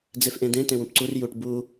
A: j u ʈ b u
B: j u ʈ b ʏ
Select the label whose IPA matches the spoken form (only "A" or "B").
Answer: A